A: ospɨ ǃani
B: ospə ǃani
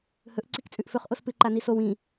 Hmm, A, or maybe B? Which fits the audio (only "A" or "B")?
A